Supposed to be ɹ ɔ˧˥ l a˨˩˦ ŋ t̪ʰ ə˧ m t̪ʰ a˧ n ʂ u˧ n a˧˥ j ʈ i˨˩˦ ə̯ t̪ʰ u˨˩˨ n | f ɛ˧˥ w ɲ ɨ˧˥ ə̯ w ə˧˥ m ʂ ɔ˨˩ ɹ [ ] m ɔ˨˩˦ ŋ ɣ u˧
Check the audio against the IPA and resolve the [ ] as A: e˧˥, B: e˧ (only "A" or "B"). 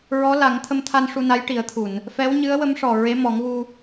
A